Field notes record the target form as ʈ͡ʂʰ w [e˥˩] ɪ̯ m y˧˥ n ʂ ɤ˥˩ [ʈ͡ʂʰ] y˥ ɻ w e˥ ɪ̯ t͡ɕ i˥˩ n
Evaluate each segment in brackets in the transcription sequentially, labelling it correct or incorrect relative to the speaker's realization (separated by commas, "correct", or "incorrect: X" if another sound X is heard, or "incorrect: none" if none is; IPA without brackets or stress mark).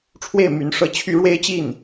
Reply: correct, incorrect: t͡ɕʰ